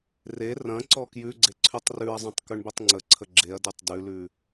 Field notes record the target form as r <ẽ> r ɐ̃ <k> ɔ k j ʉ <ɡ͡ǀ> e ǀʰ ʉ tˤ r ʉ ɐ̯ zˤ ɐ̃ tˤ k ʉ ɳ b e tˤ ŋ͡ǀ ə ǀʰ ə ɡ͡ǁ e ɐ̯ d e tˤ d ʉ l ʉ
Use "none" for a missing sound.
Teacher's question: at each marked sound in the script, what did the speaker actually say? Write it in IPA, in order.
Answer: e, ǀ, ɡ͡ǀ

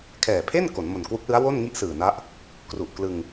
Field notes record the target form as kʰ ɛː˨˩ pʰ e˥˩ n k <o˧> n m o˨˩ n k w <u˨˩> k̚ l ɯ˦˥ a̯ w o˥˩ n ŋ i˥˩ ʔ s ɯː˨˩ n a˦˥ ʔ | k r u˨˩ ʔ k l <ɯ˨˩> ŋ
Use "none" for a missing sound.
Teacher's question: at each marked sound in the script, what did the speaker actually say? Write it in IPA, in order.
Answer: o˩˦, u˦˥, ɯ˧

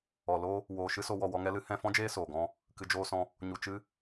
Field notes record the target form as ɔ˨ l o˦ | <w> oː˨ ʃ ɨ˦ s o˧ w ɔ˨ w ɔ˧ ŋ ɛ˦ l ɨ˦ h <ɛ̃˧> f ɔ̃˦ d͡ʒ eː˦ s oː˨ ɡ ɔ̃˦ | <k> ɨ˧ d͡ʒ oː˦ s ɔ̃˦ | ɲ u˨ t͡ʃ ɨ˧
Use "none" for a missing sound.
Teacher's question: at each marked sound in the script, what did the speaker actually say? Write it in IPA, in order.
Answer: w, ɛ̃˦˨, k

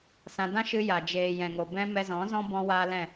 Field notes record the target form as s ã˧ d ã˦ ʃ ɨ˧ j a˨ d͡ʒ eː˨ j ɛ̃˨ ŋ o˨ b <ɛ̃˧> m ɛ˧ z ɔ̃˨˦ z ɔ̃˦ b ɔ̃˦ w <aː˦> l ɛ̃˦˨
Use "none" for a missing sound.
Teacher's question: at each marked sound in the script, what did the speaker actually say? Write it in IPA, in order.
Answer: ɛ̃˦, aː˦

